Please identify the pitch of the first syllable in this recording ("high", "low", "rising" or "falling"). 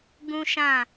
high